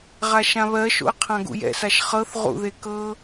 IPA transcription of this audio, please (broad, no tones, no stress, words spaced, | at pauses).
ʁaʃãβɜʃo̰ə̯ qʰãɡṵjɛ̰saʃ χɤθ ʁṵðe kɤ